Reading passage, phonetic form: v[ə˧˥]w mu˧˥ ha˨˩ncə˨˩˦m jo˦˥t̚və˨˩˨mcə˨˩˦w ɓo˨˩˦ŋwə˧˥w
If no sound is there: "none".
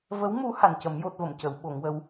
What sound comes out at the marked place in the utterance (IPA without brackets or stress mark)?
ə˧˥